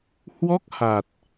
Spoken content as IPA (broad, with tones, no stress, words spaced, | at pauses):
hwɔ˦˥k̚ha˨˩t̚